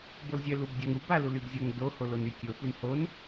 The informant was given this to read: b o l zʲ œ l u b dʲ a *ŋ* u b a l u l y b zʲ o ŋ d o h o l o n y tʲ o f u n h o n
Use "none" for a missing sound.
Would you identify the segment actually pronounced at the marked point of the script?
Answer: ŋ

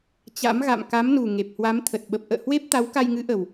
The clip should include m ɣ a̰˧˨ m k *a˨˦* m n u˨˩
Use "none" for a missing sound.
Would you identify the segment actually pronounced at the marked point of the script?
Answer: a˨˦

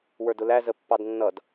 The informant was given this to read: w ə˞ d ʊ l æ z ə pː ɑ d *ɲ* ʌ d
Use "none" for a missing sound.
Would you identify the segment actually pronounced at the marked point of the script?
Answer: nː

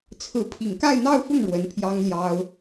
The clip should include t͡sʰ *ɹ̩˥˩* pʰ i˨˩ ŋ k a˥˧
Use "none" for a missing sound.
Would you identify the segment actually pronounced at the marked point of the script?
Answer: ɹ̩˧˥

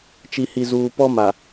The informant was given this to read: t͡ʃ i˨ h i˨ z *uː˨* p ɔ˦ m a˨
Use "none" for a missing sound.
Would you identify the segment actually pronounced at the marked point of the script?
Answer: uː˨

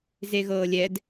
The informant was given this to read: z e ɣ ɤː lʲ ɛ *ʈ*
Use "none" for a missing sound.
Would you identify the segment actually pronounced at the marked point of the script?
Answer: d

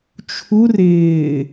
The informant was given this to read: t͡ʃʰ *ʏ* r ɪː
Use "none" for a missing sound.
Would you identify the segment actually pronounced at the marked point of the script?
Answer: u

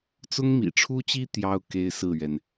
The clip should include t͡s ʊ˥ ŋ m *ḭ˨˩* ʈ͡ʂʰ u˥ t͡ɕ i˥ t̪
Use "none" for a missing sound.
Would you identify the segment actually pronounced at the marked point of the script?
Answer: ḭ˨˩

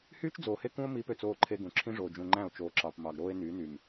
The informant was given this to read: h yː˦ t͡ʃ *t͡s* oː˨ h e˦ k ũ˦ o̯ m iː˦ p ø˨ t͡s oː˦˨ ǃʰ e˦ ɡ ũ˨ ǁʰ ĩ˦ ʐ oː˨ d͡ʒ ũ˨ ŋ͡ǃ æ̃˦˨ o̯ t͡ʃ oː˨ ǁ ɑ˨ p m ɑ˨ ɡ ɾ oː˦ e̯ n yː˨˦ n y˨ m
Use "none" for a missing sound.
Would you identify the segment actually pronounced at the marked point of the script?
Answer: d͡z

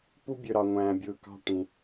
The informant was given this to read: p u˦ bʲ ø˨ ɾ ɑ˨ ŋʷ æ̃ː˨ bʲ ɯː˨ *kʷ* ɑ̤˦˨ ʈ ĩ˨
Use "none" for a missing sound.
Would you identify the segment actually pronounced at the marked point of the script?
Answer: k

